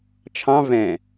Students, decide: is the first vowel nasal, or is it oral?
nasal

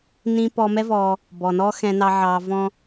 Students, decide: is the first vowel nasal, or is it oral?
nasal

